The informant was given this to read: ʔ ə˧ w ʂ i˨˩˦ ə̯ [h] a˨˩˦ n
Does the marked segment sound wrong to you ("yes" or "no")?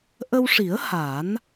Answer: no